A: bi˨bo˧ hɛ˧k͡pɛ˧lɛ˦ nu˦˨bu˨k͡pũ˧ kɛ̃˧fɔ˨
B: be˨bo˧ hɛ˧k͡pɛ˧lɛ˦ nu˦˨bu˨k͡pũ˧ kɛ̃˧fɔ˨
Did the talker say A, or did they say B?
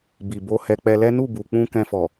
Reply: A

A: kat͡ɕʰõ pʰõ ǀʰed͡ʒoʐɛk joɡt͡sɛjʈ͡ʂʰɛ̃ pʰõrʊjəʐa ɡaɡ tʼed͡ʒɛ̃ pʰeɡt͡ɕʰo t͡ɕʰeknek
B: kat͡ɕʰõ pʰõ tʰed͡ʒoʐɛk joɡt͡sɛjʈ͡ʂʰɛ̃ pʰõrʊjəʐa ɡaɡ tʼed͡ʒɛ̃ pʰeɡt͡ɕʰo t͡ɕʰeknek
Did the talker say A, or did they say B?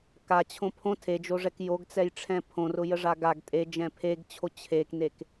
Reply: B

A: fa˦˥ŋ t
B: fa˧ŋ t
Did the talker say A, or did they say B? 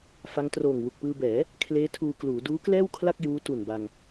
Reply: A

